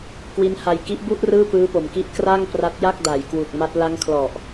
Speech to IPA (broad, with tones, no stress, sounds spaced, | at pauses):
k w i˦˥ n h a˧ j k i˦˥ ʔ b u˥˩ ʔ r ɯː˥˩ p ɯː˦˥ p o˨˩ m k i˦˥ ʔ k r a˥˩ ŋ p r a˦˥ t̚ j a˥˩ k̚ d a˨˩ j k w u˨˩ k̚ m a˦˥ t̚ l a˦˥ ŋ kʰ l ɔ˨˩ ʔ